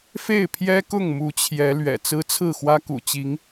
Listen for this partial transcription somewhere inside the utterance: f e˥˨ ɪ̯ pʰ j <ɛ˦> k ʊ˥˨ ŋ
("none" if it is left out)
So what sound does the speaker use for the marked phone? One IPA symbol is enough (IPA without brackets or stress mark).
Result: ɛ˦